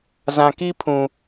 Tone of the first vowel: low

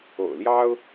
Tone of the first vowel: low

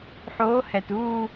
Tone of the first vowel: rising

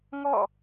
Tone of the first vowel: falling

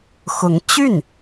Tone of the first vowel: rising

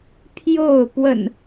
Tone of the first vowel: falling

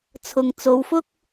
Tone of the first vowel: low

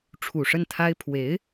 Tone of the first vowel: low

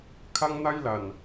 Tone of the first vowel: high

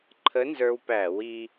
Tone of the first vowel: rising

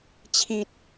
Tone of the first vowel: high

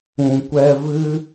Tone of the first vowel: low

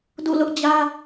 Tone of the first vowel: falling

